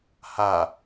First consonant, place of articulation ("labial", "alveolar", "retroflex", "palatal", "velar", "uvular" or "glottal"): glottal